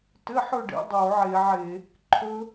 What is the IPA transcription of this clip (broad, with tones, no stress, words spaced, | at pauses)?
tɘ˧˥˧ħɵ˥˧ɖḛ˩˧ dˤo˧˩˧ʕe˧˩˧ʕe˧˩˧ | ǃʰɵ˦˥